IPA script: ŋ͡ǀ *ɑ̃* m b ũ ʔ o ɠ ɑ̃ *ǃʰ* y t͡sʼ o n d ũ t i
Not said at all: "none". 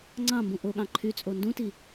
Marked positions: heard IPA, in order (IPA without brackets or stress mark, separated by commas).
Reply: ɑ̃, ǃʰ